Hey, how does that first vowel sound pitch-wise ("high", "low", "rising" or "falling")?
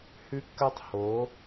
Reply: high